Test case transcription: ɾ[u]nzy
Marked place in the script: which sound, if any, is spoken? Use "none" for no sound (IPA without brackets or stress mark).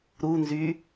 u